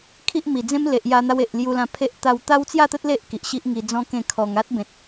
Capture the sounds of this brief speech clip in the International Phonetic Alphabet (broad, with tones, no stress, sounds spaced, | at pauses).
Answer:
kʰ i˦ ʔ m i˨˩ d͡z ẽ˦ m l e˨ ʔ j a˧ n̪ a˧ w e˨ ʔ l j u˧ l ã˧ pʰ e˦ ʔ t̪ a˧ w t̪ a˦ w t͡s j a˥˧ t̪ ə˦ t̚ l e˦ ʔ k i˨ ʔ ɕ i˦ ʔ ŋ i˧ d͡z ɔ̃˦ k ẽ˥˧ kʰ ɔ˧ ŋ a˦ t̚ b ẽ˨ t̚